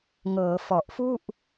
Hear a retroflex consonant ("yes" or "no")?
no